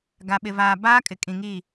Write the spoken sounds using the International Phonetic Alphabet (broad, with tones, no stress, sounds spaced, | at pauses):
ɡ a˨ ɓ ɪ˨ v aː˨ b aː˦ kʼ ɪ˨ kʼ ĩ˨ ŋ i˦˨